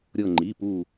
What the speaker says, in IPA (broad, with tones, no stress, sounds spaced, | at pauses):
ɾʲ ɤ˧˩ ŋ͡ǃ i˩˧˩ p u˧˩